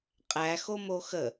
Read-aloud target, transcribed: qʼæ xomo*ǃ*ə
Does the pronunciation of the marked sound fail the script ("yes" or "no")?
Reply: yes